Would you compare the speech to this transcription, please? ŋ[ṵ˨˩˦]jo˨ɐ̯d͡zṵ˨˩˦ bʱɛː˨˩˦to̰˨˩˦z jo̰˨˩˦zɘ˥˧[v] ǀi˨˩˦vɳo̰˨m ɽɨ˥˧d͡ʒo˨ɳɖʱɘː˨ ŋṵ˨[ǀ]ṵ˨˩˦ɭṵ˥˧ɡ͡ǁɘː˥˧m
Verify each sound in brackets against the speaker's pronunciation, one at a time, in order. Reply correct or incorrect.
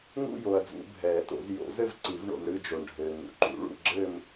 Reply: incorrect, correct, incorrect

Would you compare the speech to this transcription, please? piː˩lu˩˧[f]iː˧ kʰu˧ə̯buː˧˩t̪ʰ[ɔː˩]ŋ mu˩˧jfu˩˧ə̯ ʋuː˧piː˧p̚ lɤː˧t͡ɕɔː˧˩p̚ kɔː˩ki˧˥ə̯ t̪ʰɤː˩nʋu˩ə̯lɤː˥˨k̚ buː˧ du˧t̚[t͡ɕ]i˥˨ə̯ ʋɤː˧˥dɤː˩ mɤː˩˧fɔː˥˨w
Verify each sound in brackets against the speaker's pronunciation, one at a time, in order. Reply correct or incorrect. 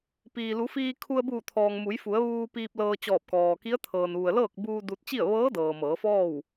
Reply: correct, correct, correct

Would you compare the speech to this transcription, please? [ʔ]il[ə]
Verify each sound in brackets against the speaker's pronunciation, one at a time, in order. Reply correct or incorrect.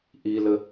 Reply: correct, correct

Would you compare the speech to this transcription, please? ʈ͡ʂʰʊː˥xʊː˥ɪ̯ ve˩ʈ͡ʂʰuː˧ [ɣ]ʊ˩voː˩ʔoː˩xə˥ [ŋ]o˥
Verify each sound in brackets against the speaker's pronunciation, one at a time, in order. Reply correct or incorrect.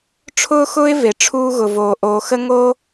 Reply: correct, correct

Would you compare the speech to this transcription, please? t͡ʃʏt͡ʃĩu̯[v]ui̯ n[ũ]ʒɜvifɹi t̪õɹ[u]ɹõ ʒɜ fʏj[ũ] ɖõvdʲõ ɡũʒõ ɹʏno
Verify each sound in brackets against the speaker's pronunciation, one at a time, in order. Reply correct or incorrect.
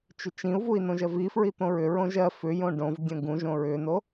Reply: correct, incorrect, incorrect, incorrect

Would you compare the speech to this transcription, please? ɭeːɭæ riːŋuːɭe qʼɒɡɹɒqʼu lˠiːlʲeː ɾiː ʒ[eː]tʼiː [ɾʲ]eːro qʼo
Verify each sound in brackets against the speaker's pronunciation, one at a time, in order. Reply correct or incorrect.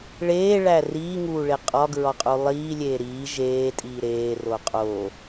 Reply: correct, incorrect

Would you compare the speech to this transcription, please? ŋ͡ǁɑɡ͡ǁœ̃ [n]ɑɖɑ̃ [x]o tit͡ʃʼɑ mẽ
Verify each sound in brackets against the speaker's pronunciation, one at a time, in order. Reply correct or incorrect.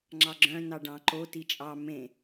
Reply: correct, incorrect

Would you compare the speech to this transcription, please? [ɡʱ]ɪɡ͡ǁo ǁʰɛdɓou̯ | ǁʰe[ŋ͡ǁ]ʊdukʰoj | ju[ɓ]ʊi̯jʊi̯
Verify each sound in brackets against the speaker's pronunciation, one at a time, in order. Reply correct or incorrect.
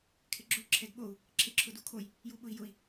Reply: incorrect, incorrect, correct

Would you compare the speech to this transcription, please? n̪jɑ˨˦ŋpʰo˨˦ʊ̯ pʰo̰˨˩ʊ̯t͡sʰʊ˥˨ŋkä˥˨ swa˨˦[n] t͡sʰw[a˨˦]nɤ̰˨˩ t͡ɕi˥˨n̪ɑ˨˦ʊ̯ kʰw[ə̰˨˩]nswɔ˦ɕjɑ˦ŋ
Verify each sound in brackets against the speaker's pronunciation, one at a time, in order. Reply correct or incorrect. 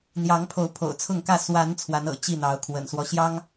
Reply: correct, correct, correct

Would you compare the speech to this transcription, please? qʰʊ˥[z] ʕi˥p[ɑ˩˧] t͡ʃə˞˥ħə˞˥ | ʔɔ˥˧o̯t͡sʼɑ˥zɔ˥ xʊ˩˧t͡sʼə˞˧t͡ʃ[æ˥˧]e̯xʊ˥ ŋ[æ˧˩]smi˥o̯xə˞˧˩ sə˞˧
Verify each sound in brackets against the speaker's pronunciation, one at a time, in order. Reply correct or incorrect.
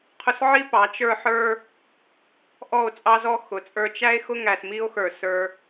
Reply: incorrect, correct, incorrect, incorrect

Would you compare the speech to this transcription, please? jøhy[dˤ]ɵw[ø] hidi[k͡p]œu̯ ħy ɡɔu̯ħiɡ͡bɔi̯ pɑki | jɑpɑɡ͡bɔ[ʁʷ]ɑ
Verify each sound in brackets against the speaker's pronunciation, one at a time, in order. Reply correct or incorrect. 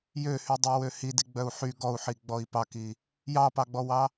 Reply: correct, correct, incorrect, incorrect

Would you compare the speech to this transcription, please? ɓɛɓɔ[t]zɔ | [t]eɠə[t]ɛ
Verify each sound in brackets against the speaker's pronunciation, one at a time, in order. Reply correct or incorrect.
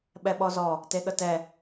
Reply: incorrect, correct, correct

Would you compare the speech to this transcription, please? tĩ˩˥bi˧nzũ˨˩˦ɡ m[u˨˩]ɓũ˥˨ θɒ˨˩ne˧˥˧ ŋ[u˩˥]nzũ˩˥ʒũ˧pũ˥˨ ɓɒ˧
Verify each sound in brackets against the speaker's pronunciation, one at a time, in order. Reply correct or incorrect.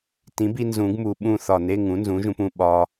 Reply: correct, incorrect

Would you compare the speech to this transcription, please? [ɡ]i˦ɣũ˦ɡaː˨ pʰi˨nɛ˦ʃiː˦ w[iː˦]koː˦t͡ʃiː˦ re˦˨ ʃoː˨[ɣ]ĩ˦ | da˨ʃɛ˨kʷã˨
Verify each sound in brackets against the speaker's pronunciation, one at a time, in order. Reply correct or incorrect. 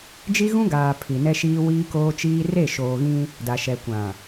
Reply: incorrect, correct, correct

